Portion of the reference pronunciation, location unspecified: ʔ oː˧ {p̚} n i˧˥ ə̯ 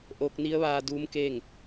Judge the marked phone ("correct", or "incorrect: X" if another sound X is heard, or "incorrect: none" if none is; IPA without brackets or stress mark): incorrect: k̚